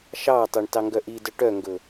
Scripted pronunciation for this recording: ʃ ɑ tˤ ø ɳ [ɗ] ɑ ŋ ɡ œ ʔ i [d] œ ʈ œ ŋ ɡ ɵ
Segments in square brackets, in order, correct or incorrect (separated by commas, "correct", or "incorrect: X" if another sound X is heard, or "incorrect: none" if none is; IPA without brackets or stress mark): incorrect: t, correct